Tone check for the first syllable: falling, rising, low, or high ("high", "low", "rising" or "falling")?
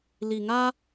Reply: low